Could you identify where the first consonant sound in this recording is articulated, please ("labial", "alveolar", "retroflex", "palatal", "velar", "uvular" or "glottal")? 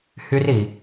glottal